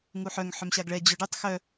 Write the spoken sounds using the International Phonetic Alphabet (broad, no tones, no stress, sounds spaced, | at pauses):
ŋ u ħ œ ŋ ħ œ m ɕ a ɡ ɭ ɛ d͡ʑ œ ɖ y tˤ x œ